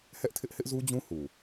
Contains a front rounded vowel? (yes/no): no